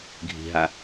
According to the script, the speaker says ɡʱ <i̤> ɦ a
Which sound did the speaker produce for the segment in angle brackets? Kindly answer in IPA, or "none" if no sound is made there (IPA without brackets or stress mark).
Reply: i̤